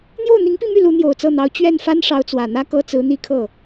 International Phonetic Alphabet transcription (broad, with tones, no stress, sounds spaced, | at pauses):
n̪ j o˥˩ ʊ̯ n̪ i˧˥ ŋ p i˥˧ m y˥˩ l u˧˥ n̪ j o˨˩ ʊ̯ t͡s ɤ˥˩ n̪ ɑ˧˥ ʊ̯ t͡ɕ ɥ ɛ˥˩ n f a˥ n ʂ ɑ˧˥ ʊ̯ t͡s w ä˨˩ n̪ ä˥ k ɤ˥ t͡s ɹ̩˧˥ n̪ i˥˧ kʰ ɤ˥˩